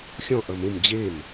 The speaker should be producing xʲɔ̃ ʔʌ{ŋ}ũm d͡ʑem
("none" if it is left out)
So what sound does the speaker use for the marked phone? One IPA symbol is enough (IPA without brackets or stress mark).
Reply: m